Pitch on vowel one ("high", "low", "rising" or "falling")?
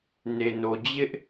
low